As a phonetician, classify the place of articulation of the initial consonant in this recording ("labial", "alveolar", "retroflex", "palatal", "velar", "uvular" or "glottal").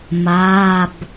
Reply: labial